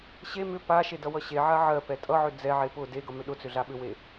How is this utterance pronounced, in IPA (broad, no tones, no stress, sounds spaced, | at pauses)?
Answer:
ɕ e m ʏ p a ʃ e d ʌ w ʌ ɕ e ʕ a ʕ ɜ p ɛ tʼ ʌ ʕ ʏ d͡z ɛ ʕ e p ʊ d e ɡ ʌ m ʏ ɗ ʊ t͡s ʏ ɮ a ɓ ʏ w e